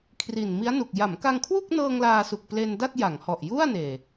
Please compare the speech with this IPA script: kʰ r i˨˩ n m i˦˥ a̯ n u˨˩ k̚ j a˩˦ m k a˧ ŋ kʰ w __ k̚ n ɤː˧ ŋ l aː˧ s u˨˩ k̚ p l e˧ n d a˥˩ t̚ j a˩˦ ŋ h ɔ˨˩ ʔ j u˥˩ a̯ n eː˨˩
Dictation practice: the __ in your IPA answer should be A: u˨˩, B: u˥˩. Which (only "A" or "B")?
B